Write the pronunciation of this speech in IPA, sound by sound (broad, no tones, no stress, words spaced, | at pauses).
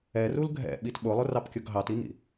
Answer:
ɛrul ɡʱɛ̰ɓit ɓʊlˠʊrɑpkʲʊɡ ɦɑtinḭ